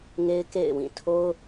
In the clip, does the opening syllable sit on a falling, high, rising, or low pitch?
high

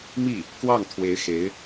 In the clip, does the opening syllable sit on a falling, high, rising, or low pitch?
falling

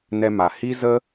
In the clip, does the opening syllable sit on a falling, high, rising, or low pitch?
high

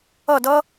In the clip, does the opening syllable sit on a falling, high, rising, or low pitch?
falling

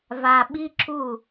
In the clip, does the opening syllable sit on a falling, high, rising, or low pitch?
low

